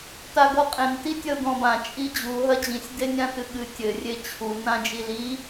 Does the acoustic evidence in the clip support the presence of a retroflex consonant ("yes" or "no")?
no